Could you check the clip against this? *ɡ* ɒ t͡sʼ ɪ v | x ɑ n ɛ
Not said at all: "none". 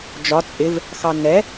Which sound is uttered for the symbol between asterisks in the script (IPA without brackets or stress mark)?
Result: d͡ʒ